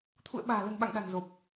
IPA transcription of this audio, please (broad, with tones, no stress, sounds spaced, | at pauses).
t̪ʰ ṵ˧˨ ə̯ ɓ a̤ː˨˩ l ə̤˨˩ n ɓ a̰˧˨ ŋ ɗ a̤˨˩ n z o˨˩ p̚